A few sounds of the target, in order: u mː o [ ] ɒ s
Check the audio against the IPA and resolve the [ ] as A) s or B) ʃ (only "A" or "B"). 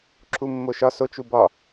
B